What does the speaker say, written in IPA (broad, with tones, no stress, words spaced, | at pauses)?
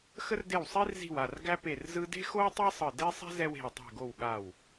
xə˥rde˥˩wsˤi˥rzi̤˥˩w a˥˩rɡæ˥pe˥˩rzɯ˥ de̤˥xo˥wtˤæ˥ sˤɯ˥˩ de˥sˤɛ̤˥ zɛ˥we̤˥˩wtˤe̤˥˩ɡo˥˩w ɠa˥˩w